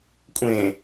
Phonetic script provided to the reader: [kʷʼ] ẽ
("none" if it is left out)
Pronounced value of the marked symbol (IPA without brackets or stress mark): kʷʼ